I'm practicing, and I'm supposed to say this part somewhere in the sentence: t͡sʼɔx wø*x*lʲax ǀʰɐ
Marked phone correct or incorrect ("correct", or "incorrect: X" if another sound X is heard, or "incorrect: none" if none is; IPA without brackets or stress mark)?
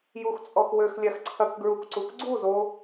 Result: correct